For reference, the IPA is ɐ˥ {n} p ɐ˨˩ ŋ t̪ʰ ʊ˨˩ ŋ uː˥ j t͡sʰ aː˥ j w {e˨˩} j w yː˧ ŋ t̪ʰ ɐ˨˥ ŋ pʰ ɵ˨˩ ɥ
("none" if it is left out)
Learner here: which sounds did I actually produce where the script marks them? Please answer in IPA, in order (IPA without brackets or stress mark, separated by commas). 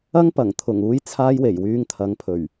ŋ, e˨˩